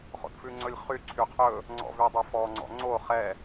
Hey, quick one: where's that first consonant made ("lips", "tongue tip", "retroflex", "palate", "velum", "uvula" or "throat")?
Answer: uvula